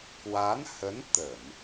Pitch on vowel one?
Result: rising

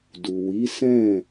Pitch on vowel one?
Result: low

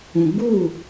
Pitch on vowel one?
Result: low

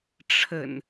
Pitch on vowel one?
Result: low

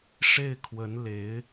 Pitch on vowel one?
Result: falling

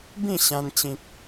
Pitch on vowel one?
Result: falling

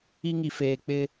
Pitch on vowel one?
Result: high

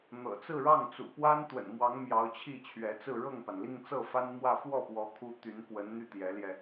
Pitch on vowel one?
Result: low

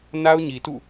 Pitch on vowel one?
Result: high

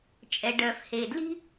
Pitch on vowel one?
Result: low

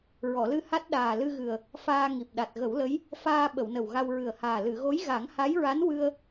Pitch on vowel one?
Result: low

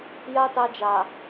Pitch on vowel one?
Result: high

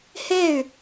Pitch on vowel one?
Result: falling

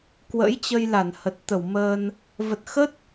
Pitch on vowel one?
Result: rising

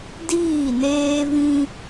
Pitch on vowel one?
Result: falling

